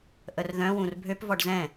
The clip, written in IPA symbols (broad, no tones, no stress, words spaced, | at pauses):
ʔərðœ̃wũr bʱøpvɔɖ zɛ̃